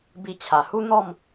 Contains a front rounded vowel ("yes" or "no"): no